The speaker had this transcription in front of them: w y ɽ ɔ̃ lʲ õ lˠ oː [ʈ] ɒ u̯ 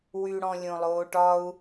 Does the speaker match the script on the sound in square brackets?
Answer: yes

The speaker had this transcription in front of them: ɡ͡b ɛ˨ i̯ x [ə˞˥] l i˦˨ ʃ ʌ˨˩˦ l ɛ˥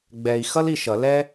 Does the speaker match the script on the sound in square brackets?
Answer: no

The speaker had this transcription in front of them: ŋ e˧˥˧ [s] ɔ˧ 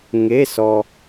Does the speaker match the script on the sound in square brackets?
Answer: yes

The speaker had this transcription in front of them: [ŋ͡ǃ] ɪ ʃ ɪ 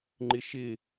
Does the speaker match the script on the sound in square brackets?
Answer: yes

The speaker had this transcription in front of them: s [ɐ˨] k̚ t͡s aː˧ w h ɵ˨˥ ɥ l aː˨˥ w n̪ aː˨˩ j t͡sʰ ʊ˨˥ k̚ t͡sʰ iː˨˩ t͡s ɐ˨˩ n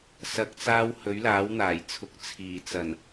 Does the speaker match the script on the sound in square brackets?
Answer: yes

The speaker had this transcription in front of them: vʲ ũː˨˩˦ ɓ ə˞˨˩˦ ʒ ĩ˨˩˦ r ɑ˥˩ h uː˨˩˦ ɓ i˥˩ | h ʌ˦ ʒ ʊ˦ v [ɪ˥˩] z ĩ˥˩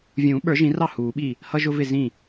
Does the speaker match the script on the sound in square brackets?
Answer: yes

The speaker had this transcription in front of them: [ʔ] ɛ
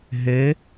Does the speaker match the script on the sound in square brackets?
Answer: no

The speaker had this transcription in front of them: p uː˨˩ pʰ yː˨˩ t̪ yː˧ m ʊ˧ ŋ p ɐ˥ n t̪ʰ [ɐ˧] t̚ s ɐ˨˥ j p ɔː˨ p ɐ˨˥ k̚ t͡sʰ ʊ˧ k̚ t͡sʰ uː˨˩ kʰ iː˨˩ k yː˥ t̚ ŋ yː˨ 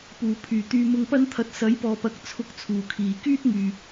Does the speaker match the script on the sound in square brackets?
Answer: yes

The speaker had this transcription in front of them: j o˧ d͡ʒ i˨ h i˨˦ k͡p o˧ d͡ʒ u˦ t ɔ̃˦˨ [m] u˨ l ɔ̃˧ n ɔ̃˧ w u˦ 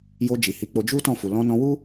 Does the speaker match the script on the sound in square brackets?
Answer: no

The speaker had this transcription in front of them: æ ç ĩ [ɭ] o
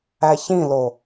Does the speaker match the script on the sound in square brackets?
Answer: no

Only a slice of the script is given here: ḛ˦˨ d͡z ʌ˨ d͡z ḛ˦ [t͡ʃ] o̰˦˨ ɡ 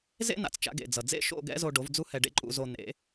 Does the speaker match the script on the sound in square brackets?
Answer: no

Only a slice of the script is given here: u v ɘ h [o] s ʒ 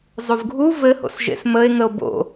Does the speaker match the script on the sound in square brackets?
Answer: no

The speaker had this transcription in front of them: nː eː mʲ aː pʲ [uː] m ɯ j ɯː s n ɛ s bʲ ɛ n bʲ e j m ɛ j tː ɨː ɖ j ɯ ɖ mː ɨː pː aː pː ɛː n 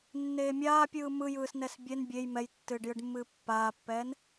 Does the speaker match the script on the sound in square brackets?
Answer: no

